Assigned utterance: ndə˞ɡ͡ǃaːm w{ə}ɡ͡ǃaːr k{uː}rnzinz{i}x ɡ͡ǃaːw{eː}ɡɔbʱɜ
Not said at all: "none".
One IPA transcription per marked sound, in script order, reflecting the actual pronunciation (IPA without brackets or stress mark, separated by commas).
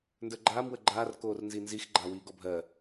ə, oː, i, iː